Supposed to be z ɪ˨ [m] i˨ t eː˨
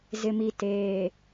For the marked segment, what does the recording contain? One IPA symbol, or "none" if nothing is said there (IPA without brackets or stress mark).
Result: m